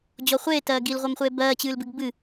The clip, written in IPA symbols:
d͡ʑɔχʷeːtɜː ɡilʁʷɜmχʷeː bɜːt͡ɕɨːlbɨɡ bɨ

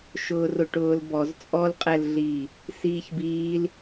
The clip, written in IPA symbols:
ʃʊːrʊʈʊːlbɔz t͡sʼɔlqʼɛlɮiː | siːçbiːl

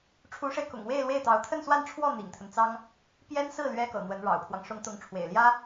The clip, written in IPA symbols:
ʈ͡ʂʰu˧˥ʂe˧ɪ̯kʊ̰˨˩ŋ we˥˧ɪ̯lwe˥˩ɪ̯t̪ɑ˧˥ʊ̯ t̪ʰə˥˧nswa˥˧nʈ͡ʂʰwɔ˥˩ n̪ḭ˨˩ŋt̪ʰə˦nt͡sɑ˥ŋ | pjɛ˥nsɹ̩˥˩ lɥɛ˥kɤ̰˨˩n̪wə˧˥n ɻɑ̰˨˩ʊ̯pʰwɑ˦ŋ ʂʊ˧˥ŋ t̪ʊ˧˥ŋʈ͡ʂʰwḛ˨˩ɪ̯ljä˥

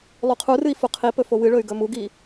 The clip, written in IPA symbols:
lˠuqʰurɨi̯ fuqʰipɵ fowɨɭɵy̯ ɡɵmuɡi

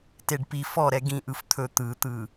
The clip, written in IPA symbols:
teɖpi fɔɾɛ ɡĩ ʔɯft̪ʰɵ t̪ɯt̪ɯ

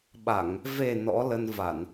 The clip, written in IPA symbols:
ɓa˧˩˨ŋ | ve˨˩ nɔ̰˧˥lə˧n va˧˩˨n

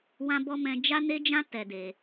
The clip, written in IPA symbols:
wã˧bɔ˧ mɛ̃˧d͡ʒa˦ ne˦d͡ʒã˦ tɛ˧de˧

